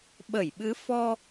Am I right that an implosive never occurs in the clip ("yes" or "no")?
no